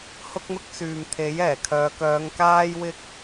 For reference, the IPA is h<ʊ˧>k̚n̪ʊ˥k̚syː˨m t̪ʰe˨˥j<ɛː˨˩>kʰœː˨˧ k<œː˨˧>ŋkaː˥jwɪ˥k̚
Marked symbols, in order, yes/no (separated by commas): no, yes, yes